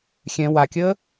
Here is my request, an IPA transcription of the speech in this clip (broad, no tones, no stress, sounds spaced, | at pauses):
xʲ ɛ̃ w a kʲ əː